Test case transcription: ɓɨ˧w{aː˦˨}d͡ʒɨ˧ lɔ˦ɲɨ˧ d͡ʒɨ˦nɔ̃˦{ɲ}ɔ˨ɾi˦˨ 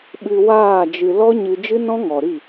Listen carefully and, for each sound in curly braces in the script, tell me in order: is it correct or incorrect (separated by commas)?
correct, incorrect